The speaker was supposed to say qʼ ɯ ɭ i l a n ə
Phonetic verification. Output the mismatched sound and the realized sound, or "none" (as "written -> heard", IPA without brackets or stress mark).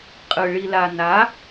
ə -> a